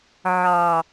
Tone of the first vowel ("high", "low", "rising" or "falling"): low